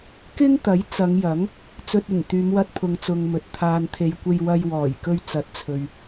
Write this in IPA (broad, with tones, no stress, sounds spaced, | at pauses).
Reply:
k ɪ˥ ŋ t̪ ɐ˨˥ j t͡s ɐ˨˧ ŋ j ɐ˨˥ ŋ | t͡s ɵ˧ t̚ ɪ˨˩ ŋ t̪ yː˨˧ m w ɐ˧ t̚ pʰ ʊ˨ ŋ t͡s ʊ˨ ŋ m ɵ˨ t̚ t̪ʰ aː˨ n t̪ʰ e˨ j kʷ e˧ j w ɐ˧ j w ɔː˨˩ j k ɵ˧ ɥ t͡s ɐ˨˥ t̚ t͡sʰ ɵ˨ ɥ